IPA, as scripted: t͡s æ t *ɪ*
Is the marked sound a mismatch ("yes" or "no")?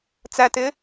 no